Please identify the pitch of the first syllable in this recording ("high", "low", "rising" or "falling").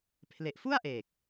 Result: low